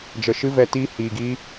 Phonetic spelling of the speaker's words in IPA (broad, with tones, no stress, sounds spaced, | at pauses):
d͡ʒ ə˨ ʃ ɨ˧ v ɛ˨ t iː˧ h iː˨ ɡ iː˧